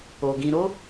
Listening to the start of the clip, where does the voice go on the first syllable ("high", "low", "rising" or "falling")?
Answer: low